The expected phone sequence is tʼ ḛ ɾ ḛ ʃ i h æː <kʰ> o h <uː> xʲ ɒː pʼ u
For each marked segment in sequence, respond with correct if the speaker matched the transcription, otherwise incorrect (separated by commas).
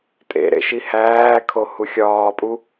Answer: correct, incorrect